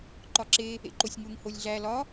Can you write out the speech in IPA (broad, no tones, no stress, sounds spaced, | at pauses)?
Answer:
ǃ ɒ ǁ e | ḛ ǃ o sʲ ŋ u ŋ h o lʲ ɮ æ l ɒ